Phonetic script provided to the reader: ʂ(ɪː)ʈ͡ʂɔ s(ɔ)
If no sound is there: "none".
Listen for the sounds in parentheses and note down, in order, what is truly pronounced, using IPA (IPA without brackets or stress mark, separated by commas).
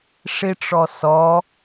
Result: ɪ, ɔ